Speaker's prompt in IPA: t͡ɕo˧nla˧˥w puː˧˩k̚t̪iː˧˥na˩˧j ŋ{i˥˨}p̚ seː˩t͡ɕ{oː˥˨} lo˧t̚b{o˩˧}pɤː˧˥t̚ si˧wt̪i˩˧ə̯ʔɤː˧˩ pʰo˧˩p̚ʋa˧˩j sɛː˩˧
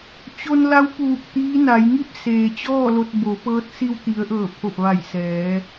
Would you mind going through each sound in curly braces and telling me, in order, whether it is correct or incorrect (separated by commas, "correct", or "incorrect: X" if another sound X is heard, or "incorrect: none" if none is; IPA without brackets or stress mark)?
correct, incorrect: ɔː˥˨, correct